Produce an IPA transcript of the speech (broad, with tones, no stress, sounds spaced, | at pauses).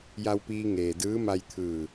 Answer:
j a˧ w p iː˧ ŋ eː˩ d ɯː˧˥ m a˧ j t̪ʰ ɯː˧˩